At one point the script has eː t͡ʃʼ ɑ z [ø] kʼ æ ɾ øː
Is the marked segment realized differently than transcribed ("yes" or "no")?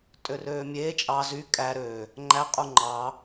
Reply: yes